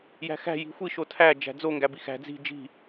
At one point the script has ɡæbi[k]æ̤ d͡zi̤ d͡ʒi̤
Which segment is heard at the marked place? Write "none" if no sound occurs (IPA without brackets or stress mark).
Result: x